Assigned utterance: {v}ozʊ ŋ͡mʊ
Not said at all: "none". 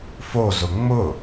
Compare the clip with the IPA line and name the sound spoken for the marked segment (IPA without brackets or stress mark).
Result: f